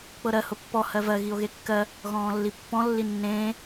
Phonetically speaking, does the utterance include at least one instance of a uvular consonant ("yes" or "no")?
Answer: no